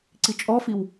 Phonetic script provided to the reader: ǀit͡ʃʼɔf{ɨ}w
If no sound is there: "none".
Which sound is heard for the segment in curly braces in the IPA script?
i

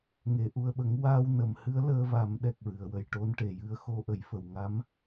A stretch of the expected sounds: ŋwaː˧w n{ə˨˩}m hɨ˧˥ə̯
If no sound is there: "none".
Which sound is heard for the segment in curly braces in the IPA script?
ə˨˩˨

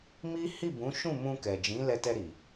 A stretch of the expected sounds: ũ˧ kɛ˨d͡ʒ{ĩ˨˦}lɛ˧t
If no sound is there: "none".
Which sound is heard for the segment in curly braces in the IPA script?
ĩ˨˦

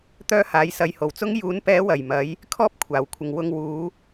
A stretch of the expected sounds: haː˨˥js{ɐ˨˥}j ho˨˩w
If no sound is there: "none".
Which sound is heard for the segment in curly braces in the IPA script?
ɐ˧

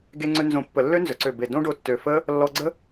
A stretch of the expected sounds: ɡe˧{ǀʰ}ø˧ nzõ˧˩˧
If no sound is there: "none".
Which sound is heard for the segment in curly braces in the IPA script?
ŋ͡ǀ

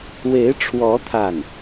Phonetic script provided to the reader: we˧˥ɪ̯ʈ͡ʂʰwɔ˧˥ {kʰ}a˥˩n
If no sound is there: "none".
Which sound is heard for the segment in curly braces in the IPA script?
t̪ʰ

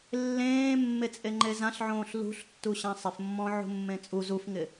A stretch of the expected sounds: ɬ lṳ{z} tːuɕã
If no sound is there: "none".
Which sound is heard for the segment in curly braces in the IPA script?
ɬ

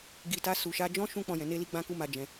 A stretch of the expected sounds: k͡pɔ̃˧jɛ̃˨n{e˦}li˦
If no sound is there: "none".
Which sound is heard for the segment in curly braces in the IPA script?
e˧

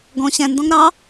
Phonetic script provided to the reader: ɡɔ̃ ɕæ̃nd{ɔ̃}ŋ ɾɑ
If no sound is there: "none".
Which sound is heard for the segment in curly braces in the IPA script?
ɔ̃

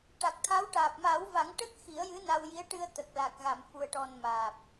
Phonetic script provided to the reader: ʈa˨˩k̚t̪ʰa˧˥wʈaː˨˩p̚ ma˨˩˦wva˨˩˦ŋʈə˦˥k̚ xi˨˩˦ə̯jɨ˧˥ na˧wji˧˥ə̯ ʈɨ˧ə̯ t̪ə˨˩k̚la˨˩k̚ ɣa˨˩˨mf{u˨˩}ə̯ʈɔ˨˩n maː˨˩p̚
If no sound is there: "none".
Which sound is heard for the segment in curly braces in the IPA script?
u˨˩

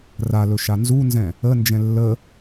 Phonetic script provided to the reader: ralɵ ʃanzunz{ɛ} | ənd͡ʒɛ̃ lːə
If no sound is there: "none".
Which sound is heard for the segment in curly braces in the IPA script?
ɛ̃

